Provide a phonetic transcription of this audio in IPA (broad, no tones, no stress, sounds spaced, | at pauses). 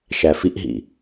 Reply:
ʃ æ f i ʔ ɦ ḭ